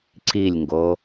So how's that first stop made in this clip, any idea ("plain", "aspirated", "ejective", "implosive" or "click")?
click